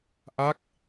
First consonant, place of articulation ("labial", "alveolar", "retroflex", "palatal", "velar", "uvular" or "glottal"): glottal